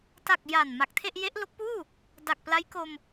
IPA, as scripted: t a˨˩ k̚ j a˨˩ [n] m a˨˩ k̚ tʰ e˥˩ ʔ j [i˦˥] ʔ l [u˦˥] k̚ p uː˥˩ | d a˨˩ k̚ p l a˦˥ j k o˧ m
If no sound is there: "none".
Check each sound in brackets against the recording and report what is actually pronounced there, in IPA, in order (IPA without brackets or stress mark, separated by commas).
n, e˦˥, o˦˥